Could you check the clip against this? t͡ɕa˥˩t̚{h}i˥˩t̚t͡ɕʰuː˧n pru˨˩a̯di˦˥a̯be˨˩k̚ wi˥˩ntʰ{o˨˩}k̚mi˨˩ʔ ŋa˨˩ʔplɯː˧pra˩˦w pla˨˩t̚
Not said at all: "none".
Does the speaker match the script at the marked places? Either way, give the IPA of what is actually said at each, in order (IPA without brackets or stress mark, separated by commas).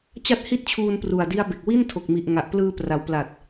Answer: h, o˨˩